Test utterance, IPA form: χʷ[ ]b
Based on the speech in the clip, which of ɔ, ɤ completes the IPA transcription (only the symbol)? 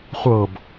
ɤ